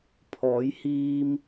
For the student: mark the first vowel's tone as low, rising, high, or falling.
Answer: rising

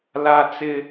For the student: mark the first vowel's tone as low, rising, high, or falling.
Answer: high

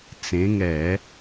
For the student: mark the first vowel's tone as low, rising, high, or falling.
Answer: rising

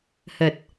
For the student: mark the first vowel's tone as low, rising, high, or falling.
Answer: low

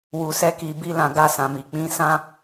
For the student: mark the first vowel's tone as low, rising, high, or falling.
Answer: low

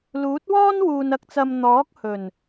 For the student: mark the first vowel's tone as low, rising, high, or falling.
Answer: rising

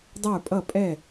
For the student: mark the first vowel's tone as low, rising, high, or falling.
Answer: falling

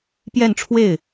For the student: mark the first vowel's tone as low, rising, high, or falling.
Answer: falling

